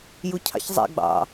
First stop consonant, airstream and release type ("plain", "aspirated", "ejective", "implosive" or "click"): aspirated